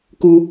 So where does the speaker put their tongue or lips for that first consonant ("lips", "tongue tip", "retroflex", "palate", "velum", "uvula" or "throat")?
velum